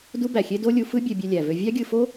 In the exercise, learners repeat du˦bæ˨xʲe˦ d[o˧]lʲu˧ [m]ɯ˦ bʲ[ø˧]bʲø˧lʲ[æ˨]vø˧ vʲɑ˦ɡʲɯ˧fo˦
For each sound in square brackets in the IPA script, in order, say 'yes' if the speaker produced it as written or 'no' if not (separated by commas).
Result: no, no, yes, yes